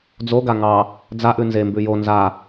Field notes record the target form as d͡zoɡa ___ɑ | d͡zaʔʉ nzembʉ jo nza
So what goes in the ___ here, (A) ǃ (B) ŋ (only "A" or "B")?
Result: B